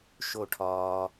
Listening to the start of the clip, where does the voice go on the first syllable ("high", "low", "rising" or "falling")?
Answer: falling